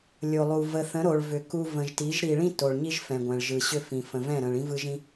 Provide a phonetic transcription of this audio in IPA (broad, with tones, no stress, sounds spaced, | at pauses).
lʲ o˨ lˠ u˨ v ə˨ θ ə̃˨˦ ɾ o˨ ɭ v ʏ˨ k u˨ v ə̃˨ ʒ t i˨˦ ʒ ɾ i˨ ɭ ĩ˦ t o˨ ɭ ɲ i˦ ʒ f ɛ̃˨ ɡʷ ɛ̃˨ ɭ ʒ ɯ˨ ɕ ʏ˦ f ĩ˨ f ə̃˨ v ɛ̃˦˨ ɾ ə̃˨ ɭ ĩ˦ v ɯ˦ ʒ ĩ˦